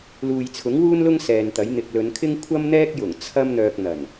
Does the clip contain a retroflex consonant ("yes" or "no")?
no